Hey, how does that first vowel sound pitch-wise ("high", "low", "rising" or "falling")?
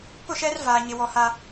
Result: falling